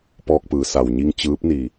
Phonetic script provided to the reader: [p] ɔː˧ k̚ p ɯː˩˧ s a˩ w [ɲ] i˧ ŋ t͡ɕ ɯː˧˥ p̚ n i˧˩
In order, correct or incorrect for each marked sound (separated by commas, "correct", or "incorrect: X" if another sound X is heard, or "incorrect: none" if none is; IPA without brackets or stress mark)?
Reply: correct, correct